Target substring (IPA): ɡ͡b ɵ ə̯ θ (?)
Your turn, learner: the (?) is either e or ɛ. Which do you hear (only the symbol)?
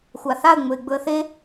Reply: e